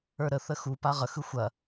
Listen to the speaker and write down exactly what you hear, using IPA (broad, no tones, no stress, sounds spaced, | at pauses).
ə˞ ɾ ə θ ə x u p a ʁ ə x ɯ xʷ ɐ